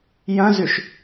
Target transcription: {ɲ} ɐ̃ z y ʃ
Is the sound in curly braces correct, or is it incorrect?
incorrect